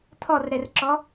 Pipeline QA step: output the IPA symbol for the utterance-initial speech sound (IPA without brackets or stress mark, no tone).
tʰ